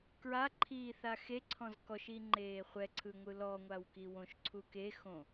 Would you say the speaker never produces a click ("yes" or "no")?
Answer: no